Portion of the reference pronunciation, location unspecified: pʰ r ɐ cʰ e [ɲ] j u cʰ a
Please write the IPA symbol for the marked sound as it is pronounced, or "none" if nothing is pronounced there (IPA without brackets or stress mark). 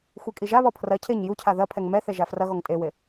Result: ɲ